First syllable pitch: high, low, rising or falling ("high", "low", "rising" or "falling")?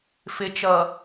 low